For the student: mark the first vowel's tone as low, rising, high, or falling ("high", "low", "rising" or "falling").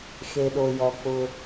low